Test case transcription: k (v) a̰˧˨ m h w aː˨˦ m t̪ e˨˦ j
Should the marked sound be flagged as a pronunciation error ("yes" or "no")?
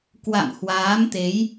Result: yes